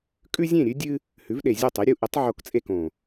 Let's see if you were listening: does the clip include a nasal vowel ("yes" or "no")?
yes